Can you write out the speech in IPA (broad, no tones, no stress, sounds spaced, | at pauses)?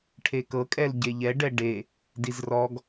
ʈʰ e k ɤ kʼ ɛ l ɟ e ʎ ɛ ɖ ɛ ɖ e | d i z r ɔ ɡ